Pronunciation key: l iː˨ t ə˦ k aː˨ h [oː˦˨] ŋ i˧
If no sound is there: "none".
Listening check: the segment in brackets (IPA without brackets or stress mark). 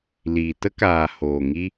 oː˨